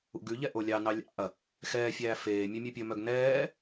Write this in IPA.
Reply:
ṵ ɡ ʉ ʎ ɛ ʔ o lʲ ɑ n ɑ lʲ ɑ̰ ɐ̯ | x ɛː fʲ æː f eː mʲ ø mʲ ø pʲ ɵ m œ ɡ n ɛː

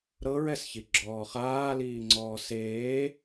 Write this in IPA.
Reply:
ɾ ɤ ɹ ɛ s ç i ɡ͡ǁ ɔː χ aː l iː ŋ͡ǀ ɔː s eː

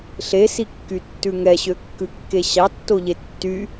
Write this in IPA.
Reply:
ɬ e s i kː y tː ʉ ŋ ɛ ɕ ø kː ʉ kː e ɕ ɑ tː o ʎ e tː y

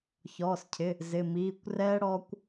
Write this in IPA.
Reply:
ç ɔː˩˧˩ s cʰ ɪ˩˧˩ | z ɪ˩˧˩ m iː˩˧˩ kʷ r ɛː˦˥ ɽ ɔː˦˥ kʷ

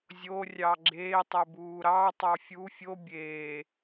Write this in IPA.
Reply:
zʲ o rʲ ɑ ɡ͡ǁ eː tˤ ə b uː ɾ ɑ tˤ ɑ fʲ u fʲ o bʲ eː

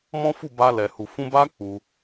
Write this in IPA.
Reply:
m ɔ̃˦ f u˦˨ b a˧ l ɛ˨ h u˨ f ũ˧ b a˦ k͡p u˧

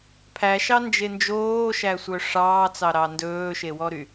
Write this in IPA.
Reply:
pʰ æ ʃ ɑ n d͡ʒ e n d͡ʒ oː ʃ æ sʷ œ ʂ ɑː t͡s ɑ ɾ ɑ n d ɵː ʃ e w ɔ ɾ y

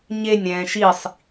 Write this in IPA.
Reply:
ɲ e nʲ ɾ ɛ̃ː ʃ i sˤ

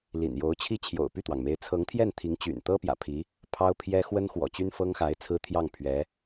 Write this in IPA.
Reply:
l ḭ˨˩ n j o˧˥ ʊ̯ t͡ɕʰ i˥ t͡ɕʰ j o̰˨˩ ʊ̯ p y˥˩ t̪ w ɑ˩ ŋ m e˧˥ ɪ̯ t͡sʰ ɤ˧˥ ŋ t̪ʰ j ɛ˥˩ n t̪ʰ i˧˥ ŋ t͡ɕ y̰˨˩ n t̪ ɤ˥ p j ä̰˨˩ pʰ i˧˥ | pʰ ɑ˥ ʊ̯ pʰ j ɛ˥ x w ə˥ n x w ɔ̰˨˩ t͡ɕ y˥ n f ɤ˥ ŋ x a˧˥ ɪ̯ t͡sʰ ɹ̩˥ t̪ʰ j ɑ˥˩ ŋ pʰ ɥ ɛ˧˥

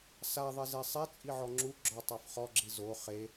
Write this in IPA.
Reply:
s a ðˤ ɛ z ɛ sˤ e t͡sʼ i ʕ ɔ ŋ͡ǁ u ɡ͡ǁ ɔ tˤ a f χ ɔ ɡ͡ǁ i z o χ e

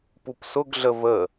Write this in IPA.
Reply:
p u p s ʊ ɡ ɮ ə v ə

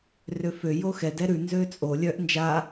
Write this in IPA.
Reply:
r ø f ø j o x ɛ d ɛ ɾ ʉ n z ø t͡sʼ o lʲ œ ʔ n d͡ʒ a

